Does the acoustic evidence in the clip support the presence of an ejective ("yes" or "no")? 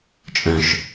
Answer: yes